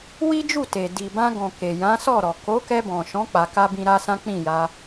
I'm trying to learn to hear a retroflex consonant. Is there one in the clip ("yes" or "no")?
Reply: no